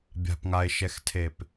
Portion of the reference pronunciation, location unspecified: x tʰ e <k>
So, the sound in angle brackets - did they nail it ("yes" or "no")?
no